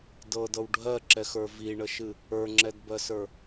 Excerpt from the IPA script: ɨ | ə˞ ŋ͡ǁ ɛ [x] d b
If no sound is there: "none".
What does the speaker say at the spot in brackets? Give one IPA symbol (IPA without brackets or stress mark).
none